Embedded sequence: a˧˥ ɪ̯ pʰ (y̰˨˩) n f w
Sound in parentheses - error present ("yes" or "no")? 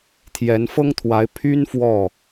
yes